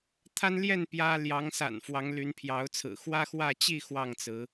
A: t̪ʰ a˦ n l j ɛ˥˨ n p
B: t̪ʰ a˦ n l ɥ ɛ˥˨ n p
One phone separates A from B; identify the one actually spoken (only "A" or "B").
A